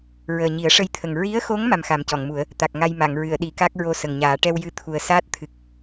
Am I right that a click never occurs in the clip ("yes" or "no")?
yes